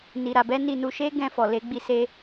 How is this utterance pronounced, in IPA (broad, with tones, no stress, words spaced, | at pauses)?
ni˧ɾa˧bɛ˦ ni˧nu˧ʃe˦ɡɛ̃˧ fɔ˨le˧ ɡ͡bi˧se˧